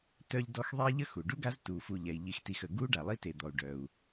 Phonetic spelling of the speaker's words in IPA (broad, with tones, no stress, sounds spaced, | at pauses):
t œ˦ ʎ d ɔ˦ x ðˤ e˥ i̯ ʎ ə˥ x u˩ ɖ u˥ ɡ a˦ z t uː˩ f u˨ ʎ ɛ˩ i̯ ʎ i˨ x t i˨ x ə˩ ɡ u˦ ɖ a˩ lˠ i˥ t e˨ d̪ ɔ˩ u̯ ɖ œ˩ u̯